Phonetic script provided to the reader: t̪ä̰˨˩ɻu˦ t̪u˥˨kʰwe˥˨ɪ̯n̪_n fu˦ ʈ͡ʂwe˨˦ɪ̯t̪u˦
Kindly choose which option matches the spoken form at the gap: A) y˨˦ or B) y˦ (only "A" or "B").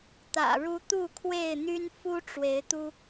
B